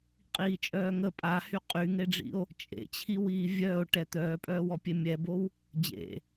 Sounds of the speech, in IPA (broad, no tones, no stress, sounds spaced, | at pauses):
qʼ iː t͡ʃʼ œː ŋ ə pʼ a h y qʼ y ŋ e ɖ͡ʐ ḭ o̯ | t͡ʃʼ ḛ t͡ɕʰ i w iː vʲ œː o̯ ʈ ɛ t̪ œː pʼ œː w ɔ pʲ e mʲ ɛ b o w | d͡ʑ ḛ